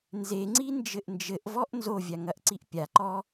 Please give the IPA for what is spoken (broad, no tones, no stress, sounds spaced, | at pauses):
n z e ŋ͡ǀ i n d͡ʒ ɘ ʔ n d͡ʒ ɘ ʔ v ɔ ʔ n z o vʲ a ŋ ɐ ʔ ǀ i ʔ pʲ a ǃ ɔ